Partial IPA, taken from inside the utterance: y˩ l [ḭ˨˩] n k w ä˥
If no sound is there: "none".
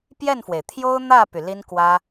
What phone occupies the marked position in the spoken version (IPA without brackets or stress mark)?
i˥